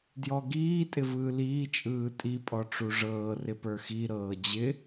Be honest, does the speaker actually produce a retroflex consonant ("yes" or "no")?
yes